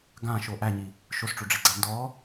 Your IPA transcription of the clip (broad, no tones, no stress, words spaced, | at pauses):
ɡãʃo ʔæɲi | ʃosʈ͡ʂoɖ͡ʐiɡ͡ǀa ndɔ